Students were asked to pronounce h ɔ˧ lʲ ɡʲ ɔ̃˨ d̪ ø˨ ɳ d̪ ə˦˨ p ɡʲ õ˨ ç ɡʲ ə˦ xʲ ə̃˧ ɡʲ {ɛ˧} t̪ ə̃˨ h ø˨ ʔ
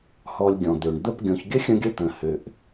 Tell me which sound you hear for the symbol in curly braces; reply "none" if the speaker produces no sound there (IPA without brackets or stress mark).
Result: ə˧